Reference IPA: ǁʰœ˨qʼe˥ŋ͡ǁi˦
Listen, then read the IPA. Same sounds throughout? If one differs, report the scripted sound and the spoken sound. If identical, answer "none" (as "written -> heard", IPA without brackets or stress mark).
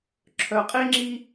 none